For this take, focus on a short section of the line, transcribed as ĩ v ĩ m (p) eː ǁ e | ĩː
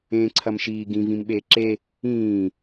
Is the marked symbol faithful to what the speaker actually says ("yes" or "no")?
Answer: no